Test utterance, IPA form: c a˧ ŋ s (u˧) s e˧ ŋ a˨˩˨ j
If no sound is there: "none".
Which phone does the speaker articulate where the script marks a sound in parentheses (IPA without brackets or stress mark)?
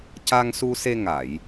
u˧